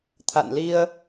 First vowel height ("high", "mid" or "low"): low